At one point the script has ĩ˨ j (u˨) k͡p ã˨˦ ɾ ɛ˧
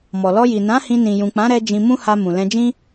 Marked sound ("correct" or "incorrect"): incorrect